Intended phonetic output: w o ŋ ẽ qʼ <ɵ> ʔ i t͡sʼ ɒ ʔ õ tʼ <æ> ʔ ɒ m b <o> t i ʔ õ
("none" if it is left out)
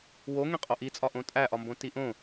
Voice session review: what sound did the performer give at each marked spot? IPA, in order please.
o, æ, õ

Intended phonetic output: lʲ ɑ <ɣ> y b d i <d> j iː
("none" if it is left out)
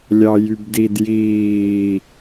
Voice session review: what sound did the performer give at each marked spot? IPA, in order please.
j, d

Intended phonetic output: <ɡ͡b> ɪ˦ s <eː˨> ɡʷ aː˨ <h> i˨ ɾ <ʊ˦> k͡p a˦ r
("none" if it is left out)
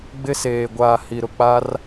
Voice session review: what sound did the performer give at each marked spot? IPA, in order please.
ɡ͡b, eː˨, h, ʊ˨

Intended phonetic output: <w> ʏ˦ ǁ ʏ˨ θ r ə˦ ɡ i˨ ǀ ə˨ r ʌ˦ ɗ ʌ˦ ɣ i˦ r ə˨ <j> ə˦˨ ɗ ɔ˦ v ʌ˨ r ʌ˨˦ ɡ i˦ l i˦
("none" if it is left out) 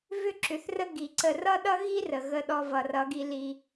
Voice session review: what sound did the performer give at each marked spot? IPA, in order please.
v, ɣ

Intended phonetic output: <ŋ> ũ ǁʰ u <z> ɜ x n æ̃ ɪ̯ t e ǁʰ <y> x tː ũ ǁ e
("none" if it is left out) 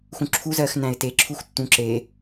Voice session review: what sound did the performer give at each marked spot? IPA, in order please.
x, z, u

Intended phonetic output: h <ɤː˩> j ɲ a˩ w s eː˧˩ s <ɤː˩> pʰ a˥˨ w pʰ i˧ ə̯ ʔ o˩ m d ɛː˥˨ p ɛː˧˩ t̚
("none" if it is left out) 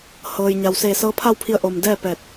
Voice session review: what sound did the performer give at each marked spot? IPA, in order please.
ɤː˩, ɤː˧˥

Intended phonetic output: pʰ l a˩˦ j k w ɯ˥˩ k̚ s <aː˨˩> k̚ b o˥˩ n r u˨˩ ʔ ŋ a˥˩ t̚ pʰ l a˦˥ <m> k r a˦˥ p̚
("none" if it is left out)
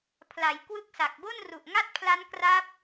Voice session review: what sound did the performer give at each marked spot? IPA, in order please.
a˨˩, n

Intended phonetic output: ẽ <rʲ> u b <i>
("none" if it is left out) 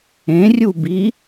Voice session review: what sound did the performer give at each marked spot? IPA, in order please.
rʲ, i

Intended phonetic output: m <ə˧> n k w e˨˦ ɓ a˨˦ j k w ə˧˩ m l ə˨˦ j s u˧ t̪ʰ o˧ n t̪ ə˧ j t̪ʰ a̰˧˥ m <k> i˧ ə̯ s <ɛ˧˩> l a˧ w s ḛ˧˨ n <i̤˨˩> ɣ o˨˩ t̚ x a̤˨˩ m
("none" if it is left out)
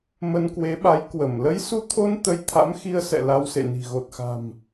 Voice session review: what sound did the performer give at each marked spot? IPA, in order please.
ə˧, x, ɛ̰˧˨, i̤˨˩

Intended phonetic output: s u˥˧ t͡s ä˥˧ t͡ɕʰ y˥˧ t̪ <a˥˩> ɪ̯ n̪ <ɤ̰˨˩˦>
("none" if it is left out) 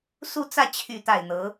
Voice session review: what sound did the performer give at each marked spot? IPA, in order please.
a˥˩, ɤ˧˥

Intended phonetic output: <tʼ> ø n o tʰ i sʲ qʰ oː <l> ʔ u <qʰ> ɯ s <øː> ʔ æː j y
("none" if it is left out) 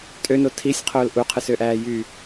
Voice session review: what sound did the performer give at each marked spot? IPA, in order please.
tʼ, l, qʰ, ø

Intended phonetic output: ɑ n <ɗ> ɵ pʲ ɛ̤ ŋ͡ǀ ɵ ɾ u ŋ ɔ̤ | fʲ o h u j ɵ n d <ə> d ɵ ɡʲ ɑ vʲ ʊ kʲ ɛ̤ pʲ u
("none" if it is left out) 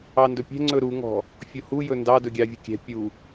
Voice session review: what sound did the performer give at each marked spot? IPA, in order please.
d, ɑ

